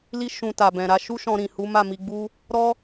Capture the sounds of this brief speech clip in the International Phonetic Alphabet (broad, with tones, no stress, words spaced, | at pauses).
li˦ ʃũ˧ta˨bɛ̃˨ɾa˧ ʃu˦ʃɔ̃˧ɾĩ˨ hu˨˦ma˦˨mi˧ɡ͡bu˦ | ɾɔ˦